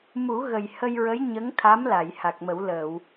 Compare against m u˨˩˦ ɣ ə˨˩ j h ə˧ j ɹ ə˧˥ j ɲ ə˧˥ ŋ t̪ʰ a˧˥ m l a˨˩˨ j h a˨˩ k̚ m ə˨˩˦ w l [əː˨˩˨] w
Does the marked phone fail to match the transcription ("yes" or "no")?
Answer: no